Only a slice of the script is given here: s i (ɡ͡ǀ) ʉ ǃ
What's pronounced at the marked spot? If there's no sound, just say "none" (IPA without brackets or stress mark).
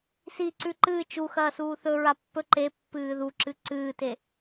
ǀ